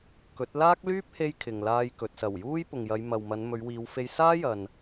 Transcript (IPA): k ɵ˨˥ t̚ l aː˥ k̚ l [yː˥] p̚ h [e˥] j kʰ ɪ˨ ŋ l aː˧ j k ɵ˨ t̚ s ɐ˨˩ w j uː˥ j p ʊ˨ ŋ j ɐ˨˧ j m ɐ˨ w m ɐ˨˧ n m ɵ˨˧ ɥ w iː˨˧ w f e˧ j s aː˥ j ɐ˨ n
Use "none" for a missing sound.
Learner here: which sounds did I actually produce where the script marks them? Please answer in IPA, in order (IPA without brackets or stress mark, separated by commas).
yː˥, e˧